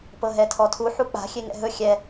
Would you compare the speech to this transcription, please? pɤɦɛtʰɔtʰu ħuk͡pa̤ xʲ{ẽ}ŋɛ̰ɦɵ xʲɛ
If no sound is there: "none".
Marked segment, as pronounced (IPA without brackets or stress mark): e